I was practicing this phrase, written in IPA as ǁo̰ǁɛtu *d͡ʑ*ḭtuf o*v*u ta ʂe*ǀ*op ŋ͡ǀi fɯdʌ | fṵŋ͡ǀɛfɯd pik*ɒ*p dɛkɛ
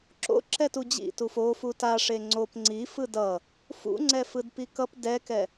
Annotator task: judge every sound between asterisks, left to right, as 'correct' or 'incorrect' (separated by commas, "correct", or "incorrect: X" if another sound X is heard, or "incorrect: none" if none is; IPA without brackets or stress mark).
correct, incorrect: f, incorrect: ŋ͡ǀ, incorrect: ʌ